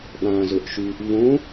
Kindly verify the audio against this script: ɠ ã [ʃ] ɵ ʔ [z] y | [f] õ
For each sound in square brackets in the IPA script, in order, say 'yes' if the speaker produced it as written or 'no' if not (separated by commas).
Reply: no, no, no